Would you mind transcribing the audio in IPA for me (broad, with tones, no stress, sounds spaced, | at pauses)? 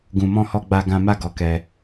ɡ ũ˧ m ɔ̃˦ h ɔ˦ ɡ͡b a˦ ɡ ã˦ m a˦ ɡ ɔ˧ k ɛ˧